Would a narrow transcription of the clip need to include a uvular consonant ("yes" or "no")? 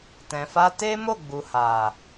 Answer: no